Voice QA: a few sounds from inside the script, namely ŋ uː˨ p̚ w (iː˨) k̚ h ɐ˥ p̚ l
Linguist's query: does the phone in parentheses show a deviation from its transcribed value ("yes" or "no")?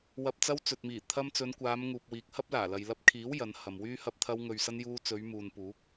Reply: no